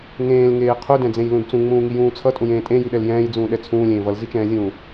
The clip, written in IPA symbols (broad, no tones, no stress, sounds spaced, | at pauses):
ŋ ẽː l ŋ eː qʰ u d ɛ̃ d͡z ẽ j l ũ d t͡s ũ ŋ͡m ũː ŋ i j ũː t͡sʰ ʌ tʼ ũ j ẽː tʼ ẽ j i ɗ ɛ l j ɛ̃ː j d͡z ũː ɗ ɛ t͡sʰ ũː lʲ ẽː v ʌ l z i t͡ʃ ɛ̃ː zʲ ũː